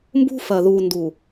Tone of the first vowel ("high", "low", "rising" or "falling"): high